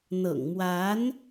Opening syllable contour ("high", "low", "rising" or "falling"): low